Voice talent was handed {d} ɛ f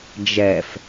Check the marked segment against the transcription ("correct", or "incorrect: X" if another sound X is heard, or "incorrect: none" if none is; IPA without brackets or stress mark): incorrect: d͡ʒ